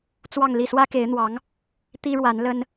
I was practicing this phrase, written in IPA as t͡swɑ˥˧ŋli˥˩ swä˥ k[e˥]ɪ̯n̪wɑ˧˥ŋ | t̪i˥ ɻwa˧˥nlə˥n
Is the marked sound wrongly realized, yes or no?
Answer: yes